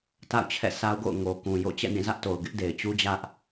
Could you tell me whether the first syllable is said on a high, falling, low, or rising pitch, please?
falling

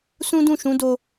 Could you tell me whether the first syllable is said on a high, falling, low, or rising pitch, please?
high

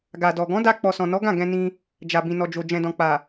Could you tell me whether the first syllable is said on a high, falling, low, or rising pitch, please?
low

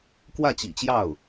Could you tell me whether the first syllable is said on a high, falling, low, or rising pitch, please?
falling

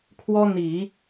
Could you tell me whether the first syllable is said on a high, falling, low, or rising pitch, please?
high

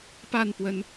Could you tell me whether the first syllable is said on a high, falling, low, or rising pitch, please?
falling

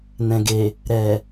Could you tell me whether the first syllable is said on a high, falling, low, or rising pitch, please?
low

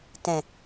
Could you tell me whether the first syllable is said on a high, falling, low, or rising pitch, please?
low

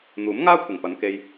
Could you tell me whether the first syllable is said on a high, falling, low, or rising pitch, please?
rising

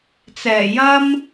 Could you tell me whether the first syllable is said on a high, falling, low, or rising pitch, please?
low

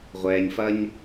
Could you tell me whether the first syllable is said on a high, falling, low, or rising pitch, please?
low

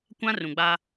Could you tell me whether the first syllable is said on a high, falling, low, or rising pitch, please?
high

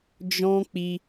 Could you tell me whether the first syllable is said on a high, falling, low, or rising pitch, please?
high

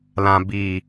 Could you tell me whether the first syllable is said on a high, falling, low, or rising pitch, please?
low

